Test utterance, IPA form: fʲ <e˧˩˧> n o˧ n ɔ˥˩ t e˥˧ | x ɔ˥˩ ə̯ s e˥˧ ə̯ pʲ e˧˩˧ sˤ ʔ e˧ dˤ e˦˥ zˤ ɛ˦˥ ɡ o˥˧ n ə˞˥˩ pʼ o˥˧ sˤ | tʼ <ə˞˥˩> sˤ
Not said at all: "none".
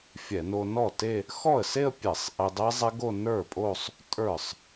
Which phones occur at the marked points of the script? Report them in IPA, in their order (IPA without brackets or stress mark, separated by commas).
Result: ɛ˧˩˧, ə˞˥˩